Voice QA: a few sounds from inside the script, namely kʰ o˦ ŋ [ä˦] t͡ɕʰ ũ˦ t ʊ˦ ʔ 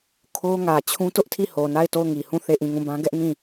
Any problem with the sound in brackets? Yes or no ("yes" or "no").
yes